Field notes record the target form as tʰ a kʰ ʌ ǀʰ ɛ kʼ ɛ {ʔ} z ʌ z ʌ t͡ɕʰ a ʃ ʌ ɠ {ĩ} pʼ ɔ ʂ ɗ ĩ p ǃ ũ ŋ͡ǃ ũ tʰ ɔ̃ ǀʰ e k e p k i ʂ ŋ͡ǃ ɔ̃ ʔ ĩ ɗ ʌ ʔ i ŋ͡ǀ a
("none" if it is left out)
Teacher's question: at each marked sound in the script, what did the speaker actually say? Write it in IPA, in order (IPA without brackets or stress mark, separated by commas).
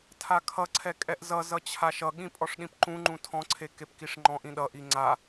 ʔ, ĩ